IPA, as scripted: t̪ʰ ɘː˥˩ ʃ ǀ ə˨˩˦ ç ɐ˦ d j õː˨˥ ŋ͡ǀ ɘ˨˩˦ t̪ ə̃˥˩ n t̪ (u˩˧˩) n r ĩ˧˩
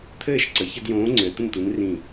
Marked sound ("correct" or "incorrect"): incorrect